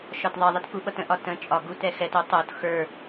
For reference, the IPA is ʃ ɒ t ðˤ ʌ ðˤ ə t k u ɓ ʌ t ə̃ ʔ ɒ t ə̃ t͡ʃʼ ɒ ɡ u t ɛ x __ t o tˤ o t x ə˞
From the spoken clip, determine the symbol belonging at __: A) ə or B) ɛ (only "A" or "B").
B